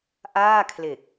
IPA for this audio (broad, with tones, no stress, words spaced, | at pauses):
ʔaː˥˩kʰle˨˩k̚